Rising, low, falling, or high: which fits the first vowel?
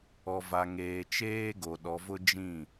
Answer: low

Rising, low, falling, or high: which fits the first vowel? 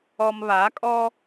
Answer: low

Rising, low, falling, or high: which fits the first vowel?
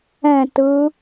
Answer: falling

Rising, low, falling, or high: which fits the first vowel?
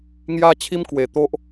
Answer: high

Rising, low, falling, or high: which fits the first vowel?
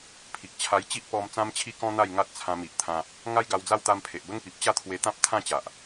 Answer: low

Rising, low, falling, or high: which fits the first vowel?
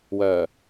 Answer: low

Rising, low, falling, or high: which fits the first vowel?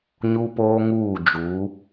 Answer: high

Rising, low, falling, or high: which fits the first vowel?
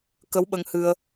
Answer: rising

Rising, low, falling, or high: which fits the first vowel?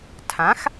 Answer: rising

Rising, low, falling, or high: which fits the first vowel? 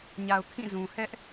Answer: low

